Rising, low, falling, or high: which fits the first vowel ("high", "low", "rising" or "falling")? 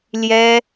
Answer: high